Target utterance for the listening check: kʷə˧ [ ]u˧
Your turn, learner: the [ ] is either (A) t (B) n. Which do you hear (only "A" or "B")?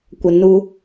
B